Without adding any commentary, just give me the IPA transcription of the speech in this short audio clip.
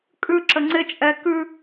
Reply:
kʼ ʉ ǁ ə ŋ͡ǀ ɪ t͡ʃʼ ɛ k ʉ

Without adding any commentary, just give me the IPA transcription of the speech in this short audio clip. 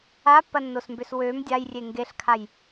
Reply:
a pː ɐ nː o s m b ø s w ø m dʲ a j rʲ e ŋ ɡ e ɬ kʰ a j

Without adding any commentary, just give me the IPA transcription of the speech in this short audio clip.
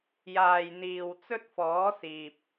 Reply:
j aː˨ j n̪ iː˨ w t͡s ɵ˧ t̚ f ɔː˨˥ s iː˨ p̚

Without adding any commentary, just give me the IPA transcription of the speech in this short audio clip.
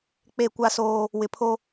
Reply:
k͡p e˦˨ kʷ a˦ s oː˦ | w ɪ˨ pʰ o˦

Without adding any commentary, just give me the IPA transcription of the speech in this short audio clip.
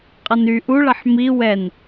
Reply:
qʼ ʌ n y ʔ u ɭ ʌ ħ m i w ɛ n

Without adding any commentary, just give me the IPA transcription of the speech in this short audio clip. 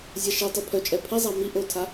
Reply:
zʲ a ʃ i tˤ u pʰ œ t͡ʃʼ ɛ pʰ i zˤ a m i ʔ o tʰ a

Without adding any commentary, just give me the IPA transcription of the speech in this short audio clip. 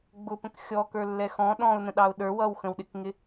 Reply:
ɡ͡b ʊ p ə̃ k xʲ ɔ k ə˞ lː ɛ x ɔ̃ ɗ ɔ̃ ʊ̯ n ə̃ ɗ ɑ ʊ̯ ɗ ə˞ w ʌ w x ə̃ w ɗ ɪ k ŋ ɪ

